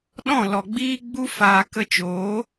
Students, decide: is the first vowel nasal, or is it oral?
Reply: nasal